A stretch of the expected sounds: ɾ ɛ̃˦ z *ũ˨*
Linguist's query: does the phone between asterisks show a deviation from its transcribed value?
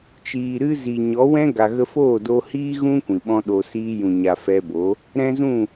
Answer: yes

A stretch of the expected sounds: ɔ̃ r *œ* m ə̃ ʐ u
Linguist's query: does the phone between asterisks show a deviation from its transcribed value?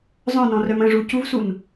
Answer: no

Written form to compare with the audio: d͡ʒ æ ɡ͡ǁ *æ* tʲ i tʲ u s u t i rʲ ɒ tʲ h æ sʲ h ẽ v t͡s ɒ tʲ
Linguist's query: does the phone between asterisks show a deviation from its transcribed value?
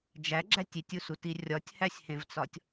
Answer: no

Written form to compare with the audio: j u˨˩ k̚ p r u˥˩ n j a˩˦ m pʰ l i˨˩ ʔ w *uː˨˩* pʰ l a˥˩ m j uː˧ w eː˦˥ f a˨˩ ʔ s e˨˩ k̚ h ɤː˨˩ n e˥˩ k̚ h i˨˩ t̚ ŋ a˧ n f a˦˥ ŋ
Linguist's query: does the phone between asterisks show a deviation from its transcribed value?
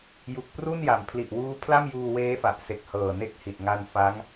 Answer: yes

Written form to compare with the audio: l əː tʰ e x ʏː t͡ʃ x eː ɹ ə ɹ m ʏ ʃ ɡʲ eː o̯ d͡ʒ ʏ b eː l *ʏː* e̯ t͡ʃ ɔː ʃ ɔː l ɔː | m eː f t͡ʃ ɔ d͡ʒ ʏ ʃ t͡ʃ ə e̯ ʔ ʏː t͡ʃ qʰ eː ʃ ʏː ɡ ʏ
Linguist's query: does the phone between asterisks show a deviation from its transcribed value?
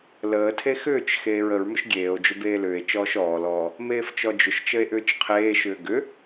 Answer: no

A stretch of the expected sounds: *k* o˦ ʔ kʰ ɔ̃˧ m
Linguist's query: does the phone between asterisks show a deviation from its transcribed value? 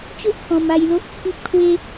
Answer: yes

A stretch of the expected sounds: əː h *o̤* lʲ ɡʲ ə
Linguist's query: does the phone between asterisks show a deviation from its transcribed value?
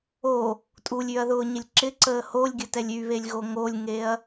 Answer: yes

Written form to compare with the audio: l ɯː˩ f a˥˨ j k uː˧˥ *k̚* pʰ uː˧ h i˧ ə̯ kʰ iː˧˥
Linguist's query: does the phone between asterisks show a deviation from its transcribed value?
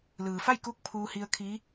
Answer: no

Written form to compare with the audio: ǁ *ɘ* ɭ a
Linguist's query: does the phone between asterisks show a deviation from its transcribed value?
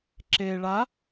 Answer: yes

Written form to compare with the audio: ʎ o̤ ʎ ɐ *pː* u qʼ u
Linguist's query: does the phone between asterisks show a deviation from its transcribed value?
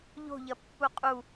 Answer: no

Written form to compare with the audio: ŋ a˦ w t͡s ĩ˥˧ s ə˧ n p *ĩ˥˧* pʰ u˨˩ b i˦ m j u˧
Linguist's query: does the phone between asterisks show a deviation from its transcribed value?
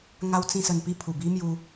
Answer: yes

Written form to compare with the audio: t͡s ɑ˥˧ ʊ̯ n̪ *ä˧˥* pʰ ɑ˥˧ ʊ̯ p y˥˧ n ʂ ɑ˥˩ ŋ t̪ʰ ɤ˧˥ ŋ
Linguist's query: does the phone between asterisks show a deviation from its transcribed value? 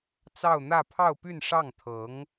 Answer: yes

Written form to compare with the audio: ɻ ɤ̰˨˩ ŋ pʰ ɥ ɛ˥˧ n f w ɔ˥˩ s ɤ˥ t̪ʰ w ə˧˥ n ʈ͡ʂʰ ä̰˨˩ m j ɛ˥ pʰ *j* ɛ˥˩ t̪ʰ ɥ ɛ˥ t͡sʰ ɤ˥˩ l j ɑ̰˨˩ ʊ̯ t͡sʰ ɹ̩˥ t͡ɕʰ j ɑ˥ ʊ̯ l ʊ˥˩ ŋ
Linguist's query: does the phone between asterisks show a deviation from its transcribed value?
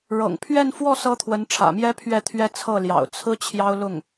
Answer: yes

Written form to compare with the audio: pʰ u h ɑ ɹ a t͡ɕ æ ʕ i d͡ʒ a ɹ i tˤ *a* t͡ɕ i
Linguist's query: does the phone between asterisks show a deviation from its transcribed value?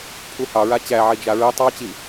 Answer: yes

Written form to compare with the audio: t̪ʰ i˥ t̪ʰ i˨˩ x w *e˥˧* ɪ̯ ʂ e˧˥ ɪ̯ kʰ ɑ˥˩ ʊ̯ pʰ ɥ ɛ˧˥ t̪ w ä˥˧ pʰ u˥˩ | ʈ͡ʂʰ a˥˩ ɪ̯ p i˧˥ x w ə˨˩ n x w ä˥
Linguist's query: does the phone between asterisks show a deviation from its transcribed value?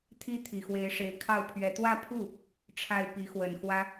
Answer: yes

